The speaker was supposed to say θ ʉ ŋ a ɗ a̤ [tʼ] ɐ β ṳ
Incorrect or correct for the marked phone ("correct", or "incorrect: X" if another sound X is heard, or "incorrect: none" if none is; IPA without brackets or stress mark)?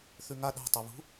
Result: incorrect: tˤ